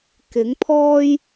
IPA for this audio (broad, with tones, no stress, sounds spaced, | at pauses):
k ɪ˨˥ ŋ pʰ ɔː˥ j